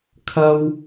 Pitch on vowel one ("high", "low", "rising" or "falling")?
high